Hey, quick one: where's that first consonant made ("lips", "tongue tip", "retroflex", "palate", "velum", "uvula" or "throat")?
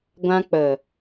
velum